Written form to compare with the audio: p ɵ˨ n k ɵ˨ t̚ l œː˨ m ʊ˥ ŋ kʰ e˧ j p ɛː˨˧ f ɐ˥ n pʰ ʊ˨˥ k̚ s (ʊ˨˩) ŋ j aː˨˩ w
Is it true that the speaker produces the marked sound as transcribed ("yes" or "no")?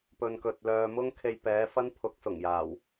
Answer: yes